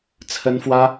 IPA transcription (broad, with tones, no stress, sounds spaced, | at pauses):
t͡sʰ ə˥ n f w ä˥